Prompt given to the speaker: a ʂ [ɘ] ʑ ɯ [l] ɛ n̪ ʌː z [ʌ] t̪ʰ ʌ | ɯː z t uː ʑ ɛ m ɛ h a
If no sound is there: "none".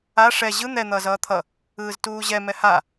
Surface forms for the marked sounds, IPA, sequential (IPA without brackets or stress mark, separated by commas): ɛ, n̪, ʌː